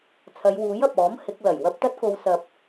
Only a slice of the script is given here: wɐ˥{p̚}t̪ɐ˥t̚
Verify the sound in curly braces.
correct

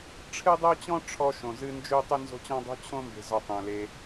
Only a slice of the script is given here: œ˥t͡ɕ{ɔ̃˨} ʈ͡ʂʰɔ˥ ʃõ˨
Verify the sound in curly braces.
incorrect: ɔ̃˥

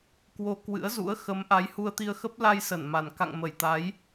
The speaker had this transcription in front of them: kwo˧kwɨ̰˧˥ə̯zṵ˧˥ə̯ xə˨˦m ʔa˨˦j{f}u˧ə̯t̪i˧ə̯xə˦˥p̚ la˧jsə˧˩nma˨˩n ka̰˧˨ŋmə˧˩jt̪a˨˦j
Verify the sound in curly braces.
incorrect: h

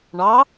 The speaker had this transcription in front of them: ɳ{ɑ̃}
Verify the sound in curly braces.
incorrect: ɑ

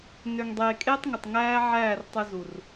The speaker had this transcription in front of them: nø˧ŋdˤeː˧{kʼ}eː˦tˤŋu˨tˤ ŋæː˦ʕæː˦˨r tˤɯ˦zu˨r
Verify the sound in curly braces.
correct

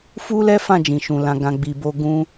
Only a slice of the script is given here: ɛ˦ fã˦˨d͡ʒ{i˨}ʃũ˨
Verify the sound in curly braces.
incorrect: ĩ˨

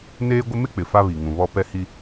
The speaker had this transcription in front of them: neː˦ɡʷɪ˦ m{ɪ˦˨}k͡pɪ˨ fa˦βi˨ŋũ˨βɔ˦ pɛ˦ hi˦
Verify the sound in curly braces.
incorrect: ɪ˦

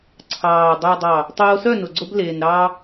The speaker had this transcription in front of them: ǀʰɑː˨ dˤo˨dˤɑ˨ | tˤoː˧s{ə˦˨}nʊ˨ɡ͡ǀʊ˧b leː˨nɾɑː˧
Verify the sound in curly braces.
incorrect: œ˦˨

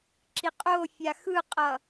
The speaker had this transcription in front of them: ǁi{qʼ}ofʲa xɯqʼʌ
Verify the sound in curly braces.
correct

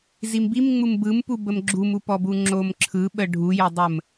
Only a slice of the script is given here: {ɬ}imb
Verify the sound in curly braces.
incorrect: z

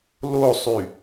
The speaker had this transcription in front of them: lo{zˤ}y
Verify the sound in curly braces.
incorrect: sˤ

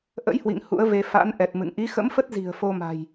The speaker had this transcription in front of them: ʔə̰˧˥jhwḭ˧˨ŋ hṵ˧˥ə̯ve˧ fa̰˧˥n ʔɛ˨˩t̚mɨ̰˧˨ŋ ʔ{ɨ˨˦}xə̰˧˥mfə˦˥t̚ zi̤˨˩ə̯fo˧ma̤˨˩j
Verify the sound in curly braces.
incorrect: i˨˦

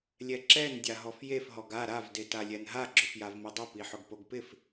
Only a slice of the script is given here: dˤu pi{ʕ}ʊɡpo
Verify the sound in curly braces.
incorrect: ħ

